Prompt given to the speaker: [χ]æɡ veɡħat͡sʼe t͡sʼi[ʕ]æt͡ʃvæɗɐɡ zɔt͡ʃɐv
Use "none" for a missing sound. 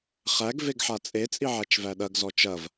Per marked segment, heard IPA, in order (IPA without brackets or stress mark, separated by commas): χ, ʕ